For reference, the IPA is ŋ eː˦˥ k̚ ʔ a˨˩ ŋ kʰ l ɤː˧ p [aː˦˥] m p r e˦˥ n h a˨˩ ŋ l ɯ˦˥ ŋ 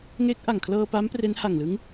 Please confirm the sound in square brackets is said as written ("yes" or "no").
yes